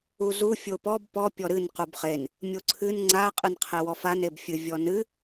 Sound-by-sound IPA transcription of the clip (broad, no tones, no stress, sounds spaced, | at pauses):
u z u fʲ o p ɔ b p ɔ pʲ ɔ ɾ ɨ n q u b χ e n | mʲ o ǀʰ ɨ n ŋ͡ǀ a qʼ ɨ n qʰ e w ɔ f a n e b fʲ ɨ vʲ ɔ n ɨ